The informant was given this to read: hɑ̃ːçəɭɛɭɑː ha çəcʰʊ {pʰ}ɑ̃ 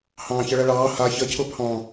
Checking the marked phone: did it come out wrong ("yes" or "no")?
no